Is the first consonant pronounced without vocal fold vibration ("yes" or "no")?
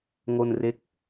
no